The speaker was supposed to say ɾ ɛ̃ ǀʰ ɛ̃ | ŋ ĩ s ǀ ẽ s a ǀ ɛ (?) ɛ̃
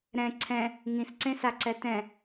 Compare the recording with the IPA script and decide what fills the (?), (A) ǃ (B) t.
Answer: B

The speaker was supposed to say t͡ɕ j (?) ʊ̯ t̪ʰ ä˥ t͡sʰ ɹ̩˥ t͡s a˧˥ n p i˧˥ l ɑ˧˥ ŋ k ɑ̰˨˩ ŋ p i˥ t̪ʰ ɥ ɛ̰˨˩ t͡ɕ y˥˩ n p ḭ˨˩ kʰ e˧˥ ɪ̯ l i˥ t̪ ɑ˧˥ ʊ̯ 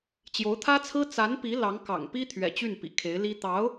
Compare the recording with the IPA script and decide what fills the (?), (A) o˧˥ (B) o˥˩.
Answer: A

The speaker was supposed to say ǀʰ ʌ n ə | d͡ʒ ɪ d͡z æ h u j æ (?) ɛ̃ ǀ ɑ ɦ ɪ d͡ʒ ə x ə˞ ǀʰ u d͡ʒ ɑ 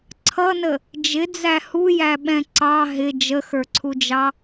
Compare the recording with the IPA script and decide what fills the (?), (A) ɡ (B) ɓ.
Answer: B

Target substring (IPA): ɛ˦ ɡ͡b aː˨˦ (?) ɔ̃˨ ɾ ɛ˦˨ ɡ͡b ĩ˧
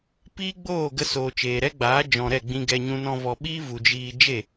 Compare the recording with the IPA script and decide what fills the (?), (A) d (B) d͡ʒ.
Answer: B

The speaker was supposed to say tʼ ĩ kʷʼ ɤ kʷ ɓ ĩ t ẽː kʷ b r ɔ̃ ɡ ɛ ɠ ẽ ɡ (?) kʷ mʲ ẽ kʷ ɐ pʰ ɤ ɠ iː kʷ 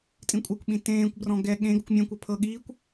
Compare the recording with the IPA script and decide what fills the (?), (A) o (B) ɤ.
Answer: A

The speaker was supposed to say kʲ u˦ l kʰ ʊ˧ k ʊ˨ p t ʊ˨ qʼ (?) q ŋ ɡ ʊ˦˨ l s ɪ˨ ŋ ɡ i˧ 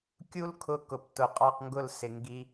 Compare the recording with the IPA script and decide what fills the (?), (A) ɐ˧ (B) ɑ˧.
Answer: B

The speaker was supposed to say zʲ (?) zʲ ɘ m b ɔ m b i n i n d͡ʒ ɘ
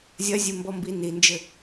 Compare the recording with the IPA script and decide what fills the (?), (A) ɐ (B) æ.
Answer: A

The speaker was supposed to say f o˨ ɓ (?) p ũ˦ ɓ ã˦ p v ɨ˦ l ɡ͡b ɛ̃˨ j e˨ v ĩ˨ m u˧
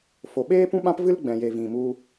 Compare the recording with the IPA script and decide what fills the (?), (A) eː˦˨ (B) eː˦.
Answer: B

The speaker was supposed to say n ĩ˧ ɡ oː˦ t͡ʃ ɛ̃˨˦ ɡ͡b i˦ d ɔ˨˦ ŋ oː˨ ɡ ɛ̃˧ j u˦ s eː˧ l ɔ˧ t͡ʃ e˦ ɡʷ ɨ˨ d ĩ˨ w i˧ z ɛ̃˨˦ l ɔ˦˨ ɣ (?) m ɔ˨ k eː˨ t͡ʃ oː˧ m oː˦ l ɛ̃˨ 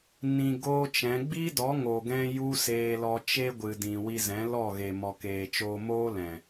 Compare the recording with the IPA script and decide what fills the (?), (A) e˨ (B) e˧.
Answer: A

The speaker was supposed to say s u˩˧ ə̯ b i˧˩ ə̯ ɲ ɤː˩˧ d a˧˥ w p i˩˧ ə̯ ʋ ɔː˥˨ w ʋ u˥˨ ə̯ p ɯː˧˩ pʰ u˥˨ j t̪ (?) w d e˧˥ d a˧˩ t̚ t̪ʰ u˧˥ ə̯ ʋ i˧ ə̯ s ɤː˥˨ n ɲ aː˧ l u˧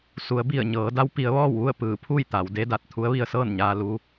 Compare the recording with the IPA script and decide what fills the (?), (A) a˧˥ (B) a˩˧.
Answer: B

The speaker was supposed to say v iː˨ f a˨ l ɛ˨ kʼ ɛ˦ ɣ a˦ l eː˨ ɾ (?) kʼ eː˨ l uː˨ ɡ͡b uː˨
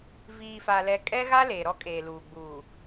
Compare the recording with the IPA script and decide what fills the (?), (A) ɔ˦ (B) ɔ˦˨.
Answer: A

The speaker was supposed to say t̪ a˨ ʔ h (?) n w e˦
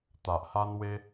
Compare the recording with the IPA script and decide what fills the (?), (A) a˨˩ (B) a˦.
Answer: B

